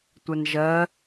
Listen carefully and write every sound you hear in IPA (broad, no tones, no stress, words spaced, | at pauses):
tʷɛnʒɜ